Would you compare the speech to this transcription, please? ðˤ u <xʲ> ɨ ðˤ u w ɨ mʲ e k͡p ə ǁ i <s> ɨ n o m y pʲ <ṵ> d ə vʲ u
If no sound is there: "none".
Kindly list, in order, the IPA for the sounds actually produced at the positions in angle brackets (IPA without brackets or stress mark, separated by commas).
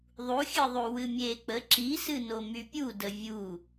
xʲ, s, u